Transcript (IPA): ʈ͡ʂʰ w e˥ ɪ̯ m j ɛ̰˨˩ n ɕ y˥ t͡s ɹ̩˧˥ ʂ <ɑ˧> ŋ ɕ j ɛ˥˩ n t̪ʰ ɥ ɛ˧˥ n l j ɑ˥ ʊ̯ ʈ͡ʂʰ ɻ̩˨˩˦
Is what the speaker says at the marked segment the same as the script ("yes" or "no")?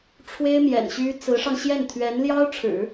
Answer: yes